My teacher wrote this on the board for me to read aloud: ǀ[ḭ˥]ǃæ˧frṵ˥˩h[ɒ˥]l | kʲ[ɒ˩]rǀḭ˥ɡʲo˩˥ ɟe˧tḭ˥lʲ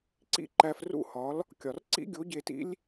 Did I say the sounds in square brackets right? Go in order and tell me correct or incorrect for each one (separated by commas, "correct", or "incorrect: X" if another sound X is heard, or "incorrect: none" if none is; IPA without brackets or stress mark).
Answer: correct, incorrect: ɒ˩˥, correct